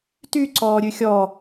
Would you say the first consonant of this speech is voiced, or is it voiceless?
voiceless